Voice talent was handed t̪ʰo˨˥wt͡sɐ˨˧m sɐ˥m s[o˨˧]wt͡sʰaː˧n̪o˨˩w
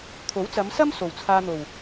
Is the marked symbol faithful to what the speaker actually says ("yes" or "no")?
no